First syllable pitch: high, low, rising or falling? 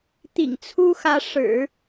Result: low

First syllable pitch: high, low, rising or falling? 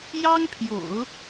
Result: high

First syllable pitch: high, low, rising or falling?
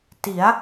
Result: rising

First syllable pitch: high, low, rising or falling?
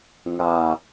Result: low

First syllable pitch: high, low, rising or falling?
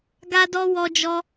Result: high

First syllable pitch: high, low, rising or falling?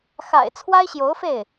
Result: low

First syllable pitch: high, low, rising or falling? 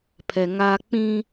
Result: low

